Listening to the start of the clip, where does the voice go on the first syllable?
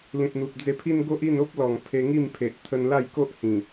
low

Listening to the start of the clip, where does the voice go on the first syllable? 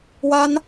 high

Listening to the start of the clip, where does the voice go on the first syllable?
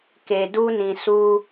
low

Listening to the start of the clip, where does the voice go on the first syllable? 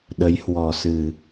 rising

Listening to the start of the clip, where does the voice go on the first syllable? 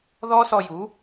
high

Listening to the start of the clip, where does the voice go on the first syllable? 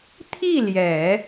falling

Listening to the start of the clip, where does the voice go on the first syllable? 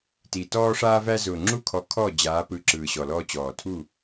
low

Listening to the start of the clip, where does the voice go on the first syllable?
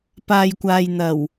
low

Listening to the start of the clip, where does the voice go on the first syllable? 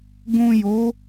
low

